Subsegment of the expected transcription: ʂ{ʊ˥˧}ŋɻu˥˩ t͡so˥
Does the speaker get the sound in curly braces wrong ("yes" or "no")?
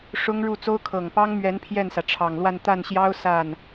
yes